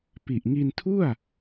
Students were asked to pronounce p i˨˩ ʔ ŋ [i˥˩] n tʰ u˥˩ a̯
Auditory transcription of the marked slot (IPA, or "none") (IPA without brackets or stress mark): i˧